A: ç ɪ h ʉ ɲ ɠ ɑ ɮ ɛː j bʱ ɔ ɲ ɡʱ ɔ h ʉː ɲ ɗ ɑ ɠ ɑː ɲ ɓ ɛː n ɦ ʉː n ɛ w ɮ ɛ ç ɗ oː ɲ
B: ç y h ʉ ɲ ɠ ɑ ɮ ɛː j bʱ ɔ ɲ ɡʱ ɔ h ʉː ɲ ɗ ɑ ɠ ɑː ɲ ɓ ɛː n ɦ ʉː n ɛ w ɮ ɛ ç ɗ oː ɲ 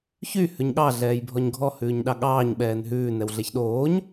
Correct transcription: B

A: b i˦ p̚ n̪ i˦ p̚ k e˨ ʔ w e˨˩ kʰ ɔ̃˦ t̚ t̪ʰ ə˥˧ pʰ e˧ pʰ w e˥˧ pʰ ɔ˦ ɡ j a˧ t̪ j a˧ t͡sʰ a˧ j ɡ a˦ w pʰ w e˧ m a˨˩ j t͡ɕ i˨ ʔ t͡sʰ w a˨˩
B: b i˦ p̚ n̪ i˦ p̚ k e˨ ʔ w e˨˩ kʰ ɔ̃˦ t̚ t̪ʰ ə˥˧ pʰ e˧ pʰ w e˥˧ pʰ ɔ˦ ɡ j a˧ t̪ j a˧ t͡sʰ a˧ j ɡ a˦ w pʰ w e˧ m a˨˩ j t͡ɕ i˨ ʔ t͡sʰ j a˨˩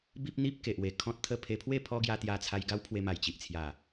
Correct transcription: B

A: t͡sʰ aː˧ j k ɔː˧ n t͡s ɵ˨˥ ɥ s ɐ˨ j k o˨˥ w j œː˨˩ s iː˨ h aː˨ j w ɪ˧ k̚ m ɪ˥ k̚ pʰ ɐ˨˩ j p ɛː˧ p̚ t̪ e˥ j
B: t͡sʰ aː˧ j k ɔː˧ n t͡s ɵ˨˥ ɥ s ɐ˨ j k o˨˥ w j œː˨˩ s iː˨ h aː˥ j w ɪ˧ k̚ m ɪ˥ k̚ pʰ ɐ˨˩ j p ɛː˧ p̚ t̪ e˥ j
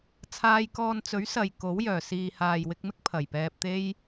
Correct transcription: A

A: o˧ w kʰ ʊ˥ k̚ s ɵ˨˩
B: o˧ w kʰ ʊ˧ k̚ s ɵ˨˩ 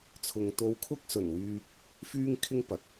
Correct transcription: A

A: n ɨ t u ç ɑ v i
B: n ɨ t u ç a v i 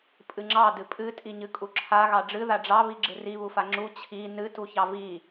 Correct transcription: A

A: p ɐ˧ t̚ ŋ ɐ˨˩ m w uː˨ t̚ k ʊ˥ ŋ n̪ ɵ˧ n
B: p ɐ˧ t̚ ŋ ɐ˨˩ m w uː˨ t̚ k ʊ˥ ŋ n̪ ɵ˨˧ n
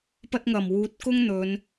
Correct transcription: B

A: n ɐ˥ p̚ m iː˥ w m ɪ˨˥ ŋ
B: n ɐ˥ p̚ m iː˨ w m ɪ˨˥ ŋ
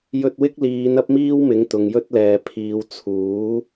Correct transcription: A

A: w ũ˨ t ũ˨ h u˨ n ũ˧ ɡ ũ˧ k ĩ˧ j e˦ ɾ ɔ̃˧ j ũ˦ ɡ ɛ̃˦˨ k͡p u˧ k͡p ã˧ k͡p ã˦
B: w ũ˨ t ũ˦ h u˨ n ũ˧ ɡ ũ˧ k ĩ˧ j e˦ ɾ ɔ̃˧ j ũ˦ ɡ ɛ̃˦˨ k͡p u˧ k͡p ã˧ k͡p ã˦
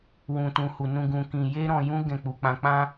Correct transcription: A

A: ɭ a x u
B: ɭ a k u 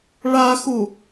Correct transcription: A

